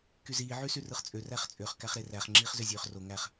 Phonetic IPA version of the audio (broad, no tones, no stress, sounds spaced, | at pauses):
k y z iː ʕ y s y r ɯ χ t͡sʼ ø r æ χ t͡sʼ ø χ k æ χ ɾ e r æ χ ŋ͡ǁ iː χ z ø zʲ øː χ r o ŋ æ χ